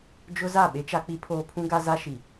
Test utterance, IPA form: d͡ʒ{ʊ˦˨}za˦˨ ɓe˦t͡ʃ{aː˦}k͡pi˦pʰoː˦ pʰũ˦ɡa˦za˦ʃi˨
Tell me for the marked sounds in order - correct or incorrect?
incorrect: ʊ˦, incorrect: a˦

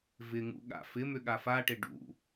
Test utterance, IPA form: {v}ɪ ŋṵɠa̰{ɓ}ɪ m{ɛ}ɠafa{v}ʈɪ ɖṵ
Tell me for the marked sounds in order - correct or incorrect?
correct, incorrect: f, incorrect: ʏ, incorrect: none

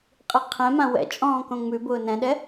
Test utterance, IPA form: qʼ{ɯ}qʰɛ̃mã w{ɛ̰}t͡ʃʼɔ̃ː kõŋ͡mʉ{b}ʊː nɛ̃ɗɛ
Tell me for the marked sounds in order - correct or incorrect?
correct, correct, correct

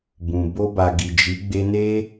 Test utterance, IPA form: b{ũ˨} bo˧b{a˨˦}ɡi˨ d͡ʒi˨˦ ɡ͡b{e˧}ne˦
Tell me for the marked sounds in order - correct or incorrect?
correct, incorrect: a˨, correct

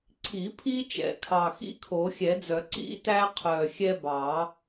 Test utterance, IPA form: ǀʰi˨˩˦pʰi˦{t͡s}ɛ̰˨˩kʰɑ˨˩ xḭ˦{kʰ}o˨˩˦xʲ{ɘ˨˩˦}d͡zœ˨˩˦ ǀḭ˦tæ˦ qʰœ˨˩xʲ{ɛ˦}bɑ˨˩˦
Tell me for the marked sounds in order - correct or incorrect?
incorrect: t͡ʃ, correct, incorrect: ɛ˨˩˦, correct

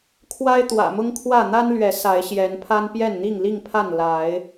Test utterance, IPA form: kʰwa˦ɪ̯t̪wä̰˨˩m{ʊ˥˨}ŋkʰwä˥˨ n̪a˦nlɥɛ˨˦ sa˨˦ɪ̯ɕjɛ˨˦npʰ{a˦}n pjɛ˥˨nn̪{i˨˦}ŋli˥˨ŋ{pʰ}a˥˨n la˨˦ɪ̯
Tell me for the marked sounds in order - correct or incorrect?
incorrect: ʊ˦, correct, incorrect: i˥˨, correct

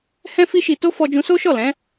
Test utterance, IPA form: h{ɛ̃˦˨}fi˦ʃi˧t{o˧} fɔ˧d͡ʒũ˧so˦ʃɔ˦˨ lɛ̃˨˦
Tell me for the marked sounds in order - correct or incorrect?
incorrect: ɛ̃˦, incorrect: o˦

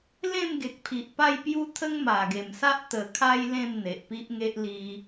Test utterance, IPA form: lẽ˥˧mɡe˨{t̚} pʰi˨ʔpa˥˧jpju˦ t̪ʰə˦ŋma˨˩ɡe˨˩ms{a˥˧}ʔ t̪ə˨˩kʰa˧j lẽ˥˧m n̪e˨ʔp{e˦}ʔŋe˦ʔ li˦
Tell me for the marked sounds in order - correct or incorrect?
incorrect: k̚, incorrect: a˦, incorrect: i˦

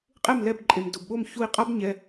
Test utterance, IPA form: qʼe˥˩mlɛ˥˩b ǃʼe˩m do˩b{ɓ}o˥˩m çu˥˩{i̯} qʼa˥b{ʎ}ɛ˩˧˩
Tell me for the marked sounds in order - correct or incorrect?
correct, correct, incorrect: ɲ

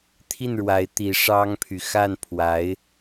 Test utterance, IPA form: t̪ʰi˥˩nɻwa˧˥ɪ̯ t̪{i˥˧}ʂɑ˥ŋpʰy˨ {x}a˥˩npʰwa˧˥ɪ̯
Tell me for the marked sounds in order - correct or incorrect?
incorrect: i˧˥, correct

